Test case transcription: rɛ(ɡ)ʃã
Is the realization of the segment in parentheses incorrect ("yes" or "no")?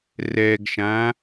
no